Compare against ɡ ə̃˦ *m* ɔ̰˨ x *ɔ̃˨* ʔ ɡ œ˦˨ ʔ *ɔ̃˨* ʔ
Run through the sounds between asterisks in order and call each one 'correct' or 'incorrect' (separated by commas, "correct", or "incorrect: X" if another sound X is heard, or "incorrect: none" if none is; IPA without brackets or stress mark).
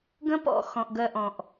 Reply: incorrect: p, correct, correct